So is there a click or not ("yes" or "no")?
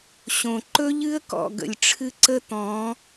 yes